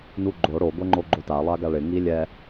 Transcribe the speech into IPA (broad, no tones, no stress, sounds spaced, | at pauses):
n u ɡ͡ǃ o ɽ o ɡʷ ɛ ŋ͡ǃ o ɡ͡ǃ o t a lˠ a ɡ a ɭ ɪ ŋ i lʲ ɛ